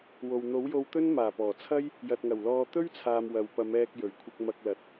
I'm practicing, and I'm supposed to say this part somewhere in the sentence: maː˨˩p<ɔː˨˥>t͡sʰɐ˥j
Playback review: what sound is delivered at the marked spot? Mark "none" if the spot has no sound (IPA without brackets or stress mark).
ɔː˨˩